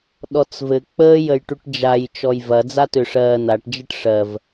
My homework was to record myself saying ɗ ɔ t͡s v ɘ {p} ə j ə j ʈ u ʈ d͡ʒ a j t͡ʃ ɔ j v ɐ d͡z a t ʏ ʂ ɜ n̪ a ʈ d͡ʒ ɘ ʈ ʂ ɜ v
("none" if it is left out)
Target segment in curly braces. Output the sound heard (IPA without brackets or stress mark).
k͡p